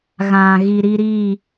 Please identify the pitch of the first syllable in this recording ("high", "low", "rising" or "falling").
low